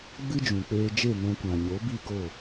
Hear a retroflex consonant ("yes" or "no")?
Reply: no